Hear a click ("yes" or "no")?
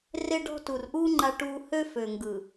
yes